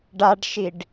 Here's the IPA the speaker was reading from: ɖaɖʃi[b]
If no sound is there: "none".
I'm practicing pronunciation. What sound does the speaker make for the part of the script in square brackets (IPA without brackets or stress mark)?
ɖ